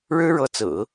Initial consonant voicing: voiced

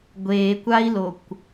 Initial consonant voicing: voiced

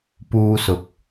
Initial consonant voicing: voiceless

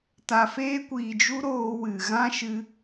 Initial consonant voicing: voiceless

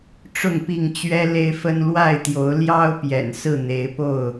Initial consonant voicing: voiceless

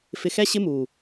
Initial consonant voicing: voiceless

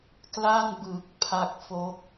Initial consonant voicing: voiceless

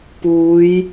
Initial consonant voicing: voiceless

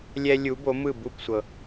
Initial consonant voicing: voiced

